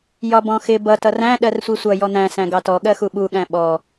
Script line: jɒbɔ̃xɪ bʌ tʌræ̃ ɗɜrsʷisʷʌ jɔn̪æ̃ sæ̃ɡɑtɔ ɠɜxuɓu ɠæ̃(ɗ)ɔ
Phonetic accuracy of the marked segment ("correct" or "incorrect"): incorrect